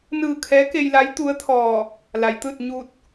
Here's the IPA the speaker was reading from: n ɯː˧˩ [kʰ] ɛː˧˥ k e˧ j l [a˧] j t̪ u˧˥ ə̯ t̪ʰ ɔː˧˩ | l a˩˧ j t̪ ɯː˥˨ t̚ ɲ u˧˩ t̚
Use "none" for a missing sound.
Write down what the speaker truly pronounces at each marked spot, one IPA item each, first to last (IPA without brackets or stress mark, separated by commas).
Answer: kʰ, a˧˥